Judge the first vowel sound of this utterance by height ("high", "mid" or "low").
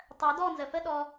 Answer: mid